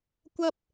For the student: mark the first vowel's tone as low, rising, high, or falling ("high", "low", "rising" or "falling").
high